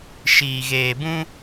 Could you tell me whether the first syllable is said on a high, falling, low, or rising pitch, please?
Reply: low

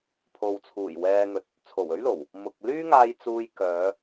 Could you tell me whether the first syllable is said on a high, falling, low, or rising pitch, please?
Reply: low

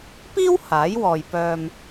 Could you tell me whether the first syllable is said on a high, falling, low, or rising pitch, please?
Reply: high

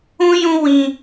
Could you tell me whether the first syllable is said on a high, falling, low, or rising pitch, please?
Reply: high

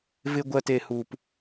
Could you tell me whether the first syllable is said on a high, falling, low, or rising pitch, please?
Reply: low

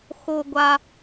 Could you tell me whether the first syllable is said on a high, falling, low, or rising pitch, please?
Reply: low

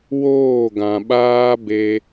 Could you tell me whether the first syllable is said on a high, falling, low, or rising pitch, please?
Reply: falling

